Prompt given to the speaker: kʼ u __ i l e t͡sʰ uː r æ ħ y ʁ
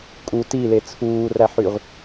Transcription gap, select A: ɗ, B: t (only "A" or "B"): B